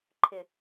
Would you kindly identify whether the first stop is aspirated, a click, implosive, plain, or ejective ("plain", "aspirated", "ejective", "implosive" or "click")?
click